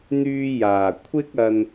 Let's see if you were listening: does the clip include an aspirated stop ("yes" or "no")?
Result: yes